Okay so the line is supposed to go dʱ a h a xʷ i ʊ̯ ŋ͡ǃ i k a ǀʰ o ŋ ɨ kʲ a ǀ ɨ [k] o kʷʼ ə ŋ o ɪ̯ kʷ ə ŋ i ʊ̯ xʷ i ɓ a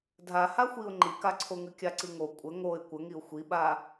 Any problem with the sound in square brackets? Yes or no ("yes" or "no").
yes